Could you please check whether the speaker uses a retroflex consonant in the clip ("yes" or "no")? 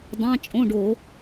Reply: yes